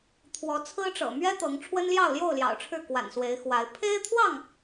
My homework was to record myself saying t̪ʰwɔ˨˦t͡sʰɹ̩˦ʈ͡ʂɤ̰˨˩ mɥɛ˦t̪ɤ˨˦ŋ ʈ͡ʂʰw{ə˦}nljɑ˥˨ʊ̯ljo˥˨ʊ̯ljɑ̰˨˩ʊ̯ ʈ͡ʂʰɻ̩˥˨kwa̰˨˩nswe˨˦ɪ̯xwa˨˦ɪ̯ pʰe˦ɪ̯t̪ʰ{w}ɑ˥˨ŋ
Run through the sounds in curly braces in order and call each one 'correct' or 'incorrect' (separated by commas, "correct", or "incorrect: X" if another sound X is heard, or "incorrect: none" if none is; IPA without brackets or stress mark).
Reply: correct, correct